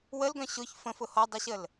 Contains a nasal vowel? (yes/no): yes